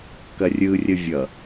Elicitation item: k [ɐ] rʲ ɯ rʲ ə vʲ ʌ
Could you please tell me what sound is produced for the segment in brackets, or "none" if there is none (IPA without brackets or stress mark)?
ɐ